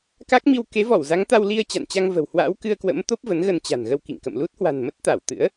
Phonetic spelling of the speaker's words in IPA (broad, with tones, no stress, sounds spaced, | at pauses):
k a˦˥ k̚ m i˧ w k e˨˦ v ɔ˧˩ w z a˨˦ ŋ t̪ a˧ w l i˧ ə̯ t͡ɕ a̰˧˨ n t͡ɕ a˧ ŋ v ə̤˨˩ w h w a̰˧˥ w k ɨ˧ ə̯ k w ə̰˧˥ m t̪ o˦˥ p̚ v ə˨˦ n ɣ ə˧ n t͡ɕ a̤˨˩ n ɣ ə˧ w k ḭ˧˨ ŋ k ə̰˧˨ m l u˦˥ t̚ h w a̤˨˩ n m ə˦˥ t̚ t̪ a˧˩ w t̪ ɨ̰˧˥ ə̯